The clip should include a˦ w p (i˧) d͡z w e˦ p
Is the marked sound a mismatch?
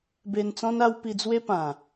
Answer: no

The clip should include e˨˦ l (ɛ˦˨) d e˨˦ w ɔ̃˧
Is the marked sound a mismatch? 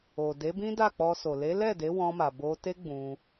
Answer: no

